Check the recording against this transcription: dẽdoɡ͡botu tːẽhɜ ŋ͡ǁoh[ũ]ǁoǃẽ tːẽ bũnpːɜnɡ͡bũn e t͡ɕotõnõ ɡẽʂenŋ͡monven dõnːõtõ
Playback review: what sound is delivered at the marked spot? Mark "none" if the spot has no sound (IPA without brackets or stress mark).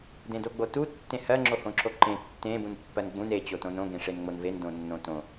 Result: õ